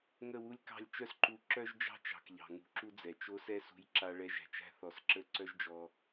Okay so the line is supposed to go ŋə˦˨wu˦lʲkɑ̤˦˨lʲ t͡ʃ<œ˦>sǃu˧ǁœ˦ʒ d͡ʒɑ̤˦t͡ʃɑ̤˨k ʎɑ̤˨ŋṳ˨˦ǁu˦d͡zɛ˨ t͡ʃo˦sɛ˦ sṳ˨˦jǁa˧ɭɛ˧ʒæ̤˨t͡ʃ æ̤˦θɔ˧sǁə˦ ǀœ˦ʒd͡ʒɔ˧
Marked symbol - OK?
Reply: yes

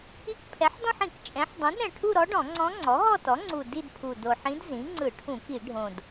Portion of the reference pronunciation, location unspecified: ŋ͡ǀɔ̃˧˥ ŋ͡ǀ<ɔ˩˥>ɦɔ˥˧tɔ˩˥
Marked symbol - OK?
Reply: yes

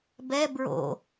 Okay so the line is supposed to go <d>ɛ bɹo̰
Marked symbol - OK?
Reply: no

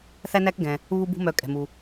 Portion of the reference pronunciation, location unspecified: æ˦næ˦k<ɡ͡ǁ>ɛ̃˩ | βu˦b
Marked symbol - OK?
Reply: no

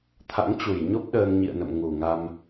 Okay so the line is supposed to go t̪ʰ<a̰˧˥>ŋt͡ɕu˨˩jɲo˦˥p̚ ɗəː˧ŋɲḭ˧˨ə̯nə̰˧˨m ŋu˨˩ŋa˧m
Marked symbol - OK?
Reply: yes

